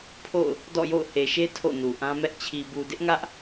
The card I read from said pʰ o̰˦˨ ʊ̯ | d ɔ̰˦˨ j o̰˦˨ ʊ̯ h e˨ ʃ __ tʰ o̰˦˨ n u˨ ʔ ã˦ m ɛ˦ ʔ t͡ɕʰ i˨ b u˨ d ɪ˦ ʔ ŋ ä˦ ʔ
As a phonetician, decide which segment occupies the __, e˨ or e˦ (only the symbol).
e˦